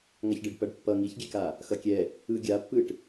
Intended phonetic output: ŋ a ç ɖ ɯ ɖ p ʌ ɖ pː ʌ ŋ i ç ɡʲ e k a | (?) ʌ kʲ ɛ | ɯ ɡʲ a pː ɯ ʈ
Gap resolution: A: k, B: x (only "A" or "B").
B